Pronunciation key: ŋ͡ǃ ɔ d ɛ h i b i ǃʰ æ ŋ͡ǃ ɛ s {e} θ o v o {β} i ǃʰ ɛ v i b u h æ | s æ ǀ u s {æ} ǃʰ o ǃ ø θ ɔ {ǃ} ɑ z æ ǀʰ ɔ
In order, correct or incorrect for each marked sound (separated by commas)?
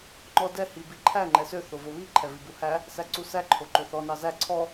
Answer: incorrect, correct, correct, incorrect